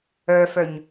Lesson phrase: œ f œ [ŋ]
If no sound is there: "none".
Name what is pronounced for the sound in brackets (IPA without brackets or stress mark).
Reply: ɲ